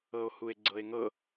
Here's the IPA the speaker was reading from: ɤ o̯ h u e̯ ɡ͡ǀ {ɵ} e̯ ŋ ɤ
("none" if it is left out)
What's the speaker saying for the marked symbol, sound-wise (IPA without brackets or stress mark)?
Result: ɤ